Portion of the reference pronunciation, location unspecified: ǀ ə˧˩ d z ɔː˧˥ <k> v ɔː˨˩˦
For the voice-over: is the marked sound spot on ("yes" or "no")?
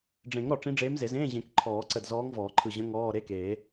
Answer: no